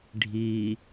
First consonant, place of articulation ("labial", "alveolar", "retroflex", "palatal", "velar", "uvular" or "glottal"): retroflex